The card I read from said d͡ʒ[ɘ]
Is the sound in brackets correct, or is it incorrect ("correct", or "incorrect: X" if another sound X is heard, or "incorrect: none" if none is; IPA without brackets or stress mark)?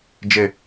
correct